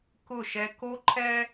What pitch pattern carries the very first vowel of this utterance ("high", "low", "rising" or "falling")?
falling